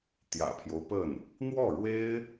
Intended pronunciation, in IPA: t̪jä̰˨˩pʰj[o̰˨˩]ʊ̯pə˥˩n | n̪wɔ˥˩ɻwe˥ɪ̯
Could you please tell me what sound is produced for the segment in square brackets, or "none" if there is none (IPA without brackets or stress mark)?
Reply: o˦